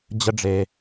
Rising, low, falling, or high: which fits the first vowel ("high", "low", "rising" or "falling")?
low